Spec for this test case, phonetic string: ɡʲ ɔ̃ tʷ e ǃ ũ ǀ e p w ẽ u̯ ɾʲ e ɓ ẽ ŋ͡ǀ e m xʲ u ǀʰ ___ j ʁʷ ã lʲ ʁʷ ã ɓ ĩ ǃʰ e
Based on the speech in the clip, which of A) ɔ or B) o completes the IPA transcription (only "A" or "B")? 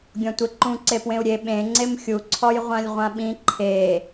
A